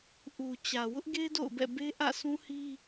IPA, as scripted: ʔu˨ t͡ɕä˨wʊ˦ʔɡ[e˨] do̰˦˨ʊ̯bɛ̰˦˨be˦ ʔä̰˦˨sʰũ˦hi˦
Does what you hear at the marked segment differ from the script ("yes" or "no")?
yes